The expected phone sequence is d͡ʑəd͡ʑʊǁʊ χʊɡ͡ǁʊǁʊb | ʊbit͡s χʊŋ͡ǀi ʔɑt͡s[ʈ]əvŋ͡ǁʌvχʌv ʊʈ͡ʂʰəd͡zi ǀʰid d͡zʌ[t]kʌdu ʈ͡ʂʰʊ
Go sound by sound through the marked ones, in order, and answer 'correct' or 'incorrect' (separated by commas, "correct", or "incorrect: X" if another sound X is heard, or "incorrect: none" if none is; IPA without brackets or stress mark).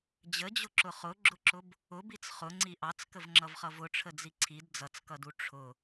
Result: incorrect: k, incorrect: t͡s